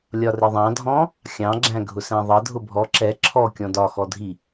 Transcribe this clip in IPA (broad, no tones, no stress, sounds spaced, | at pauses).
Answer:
lʲ ɒ r ɪ ðˤ ɑ̃ dʱ ɔ̃ | xʲ ɑ̃ ɡ͡ǁ æ̃ ɡʱ ʊ s æ̃ ðˤ ʌ dʱ ʊ bʱ ɔ ǁ ɛ ǁʰ ɔ kʲ ɔ̃ d ɒ x ɔ dʱ i